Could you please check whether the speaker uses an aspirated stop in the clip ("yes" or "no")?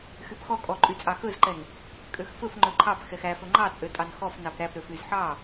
yes